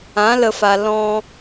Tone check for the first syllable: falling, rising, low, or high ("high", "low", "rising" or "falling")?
rising